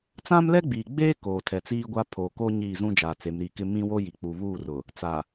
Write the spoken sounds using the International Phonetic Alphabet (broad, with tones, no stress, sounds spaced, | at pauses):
t͡s ã˦ m l ɛ˦ ɡ͡b iː˨ ɡ͡b eː˦ k oː˨ tʰ ɛ˨ t͡s iː˦ ɡʷ a˦ pʰ oː˨ k o˦ ɲ iː˦˨ z ũ˦ d͡ʒ aː˨ t͡s e˨˦ m ɾ i˨ k ɪ˦ m ĩ˦ w o˦ j i˨ k͡p u˨ β uː˦˨ r ʊ˨ | t͡s a˨